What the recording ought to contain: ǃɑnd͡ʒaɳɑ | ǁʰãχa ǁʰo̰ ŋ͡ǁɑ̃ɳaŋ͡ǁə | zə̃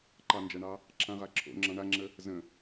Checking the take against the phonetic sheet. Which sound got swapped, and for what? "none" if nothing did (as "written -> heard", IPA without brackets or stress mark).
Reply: χ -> ʁ